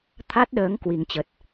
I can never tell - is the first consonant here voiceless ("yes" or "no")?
yes